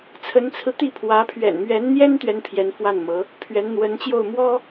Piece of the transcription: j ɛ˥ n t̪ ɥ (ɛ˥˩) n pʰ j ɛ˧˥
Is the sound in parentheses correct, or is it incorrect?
incorrect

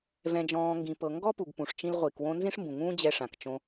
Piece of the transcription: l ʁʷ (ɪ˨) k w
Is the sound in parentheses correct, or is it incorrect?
incorrect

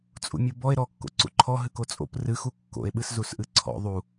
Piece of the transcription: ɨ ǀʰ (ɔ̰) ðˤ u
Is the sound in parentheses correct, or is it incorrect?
correct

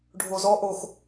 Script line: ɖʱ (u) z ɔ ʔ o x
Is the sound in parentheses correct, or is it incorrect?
incorrect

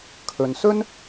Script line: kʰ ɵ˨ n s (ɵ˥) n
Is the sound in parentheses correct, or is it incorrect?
correct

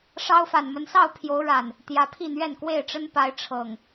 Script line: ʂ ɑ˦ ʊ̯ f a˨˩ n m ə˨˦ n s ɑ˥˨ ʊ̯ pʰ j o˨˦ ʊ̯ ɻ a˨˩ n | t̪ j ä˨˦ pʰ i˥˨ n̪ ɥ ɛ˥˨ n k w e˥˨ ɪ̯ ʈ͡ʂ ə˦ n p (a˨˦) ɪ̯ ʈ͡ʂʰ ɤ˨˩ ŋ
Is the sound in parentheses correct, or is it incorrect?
correct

